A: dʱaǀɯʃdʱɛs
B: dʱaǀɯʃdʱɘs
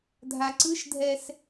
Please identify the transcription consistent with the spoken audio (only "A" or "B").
A